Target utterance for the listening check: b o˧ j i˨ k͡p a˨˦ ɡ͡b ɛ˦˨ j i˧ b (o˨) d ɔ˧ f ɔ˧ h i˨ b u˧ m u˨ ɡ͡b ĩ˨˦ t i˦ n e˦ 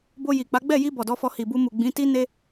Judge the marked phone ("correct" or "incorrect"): incorrect